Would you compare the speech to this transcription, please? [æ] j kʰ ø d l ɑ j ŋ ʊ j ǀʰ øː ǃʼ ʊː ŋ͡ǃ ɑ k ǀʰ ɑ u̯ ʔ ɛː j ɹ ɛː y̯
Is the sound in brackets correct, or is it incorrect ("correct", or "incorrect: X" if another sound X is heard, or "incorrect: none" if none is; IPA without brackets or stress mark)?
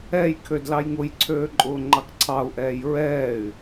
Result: incorrect: ɛ